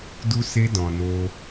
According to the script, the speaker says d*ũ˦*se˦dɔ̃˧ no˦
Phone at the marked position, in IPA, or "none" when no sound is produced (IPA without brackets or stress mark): u˦